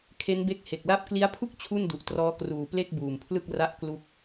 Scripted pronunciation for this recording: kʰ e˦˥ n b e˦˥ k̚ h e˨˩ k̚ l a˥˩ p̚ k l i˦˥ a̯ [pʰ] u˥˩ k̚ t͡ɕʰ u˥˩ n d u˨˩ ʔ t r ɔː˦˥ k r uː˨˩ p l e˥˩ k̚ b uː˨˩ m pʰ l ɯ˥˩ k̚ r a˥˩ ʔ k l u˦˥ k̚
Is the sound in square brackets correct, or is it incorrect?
correct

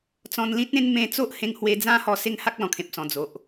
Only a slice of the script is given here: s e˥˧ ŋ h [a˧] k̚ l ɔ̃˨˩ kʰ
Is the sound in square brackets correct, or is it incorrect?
incorrect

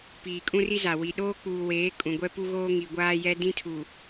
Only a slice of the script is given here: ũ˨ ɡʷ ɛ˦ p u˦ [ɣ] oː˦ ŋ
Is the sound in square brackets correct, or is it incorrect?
correct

